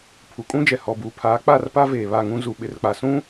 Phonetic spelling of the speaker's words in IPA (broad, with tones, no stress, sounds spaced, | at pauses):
pʰ u˨ kʼ ũ˦ d͡ʒ ɛ˨ h ɔ˨ b uː˨ pʰ aː˨˦ k͡p a˦˨ r p a˦ v eː˨ β a˦˨ ŋ ũ˦ z u˨ ɓ ɪ˨ r k͡p a˨ s ũ˦